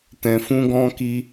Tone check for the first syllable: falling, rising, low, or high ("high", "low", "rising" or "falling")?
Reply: low